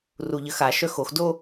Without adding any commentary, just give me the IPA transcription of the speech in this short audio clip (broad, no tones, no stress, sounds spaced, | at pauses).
r u ʎ ə x a ʃ œ x o x d o